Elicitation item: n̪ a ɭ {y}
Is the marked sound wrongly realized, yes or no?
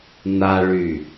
no